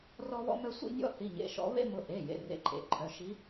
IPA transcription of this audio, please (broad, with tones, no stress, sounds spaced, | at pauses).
r ɔ˦ β ɔ̰˦ m œ˦ sʷ ḭ˦ nʲ ɔ̰˦ θ i˩˧˩ ɲ ḛ˩˧˩ ʃ ɔ̰˨˦ β ḛ˦ m ʊ˨˦ ʔ e˩˧˩ j ḛ˩˧˩ r ḛ˨˦ ǃʼ ḛ˩˧˩ ǃʰ œ˩˧˩ ʃ i˨˦